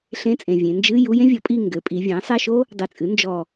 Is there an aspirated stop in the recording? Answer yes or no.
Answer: no